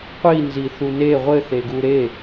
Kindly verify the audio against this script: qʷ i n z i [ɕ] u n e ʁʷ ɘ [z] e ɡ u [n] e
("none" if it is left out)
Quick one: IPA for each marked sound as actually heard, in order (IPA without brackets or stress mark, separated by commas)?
θ, θ, ɾ